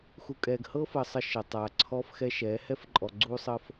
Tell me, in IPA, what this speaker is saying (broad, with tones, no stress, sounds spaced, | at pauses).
x u˨ kʼ ɛː˨ ɡ h ɤ˦ f əː˨ sˤ ə˦ ʃ ɤ˨ tˤ aː˨ ǀʰ ɔː˦ f x ɛ˦ ʃ ɛː˨˦ h ɛ˦ f ǃʼ ɔ˨ ɡ͡ǀ uː˦ sˤ əː˦ f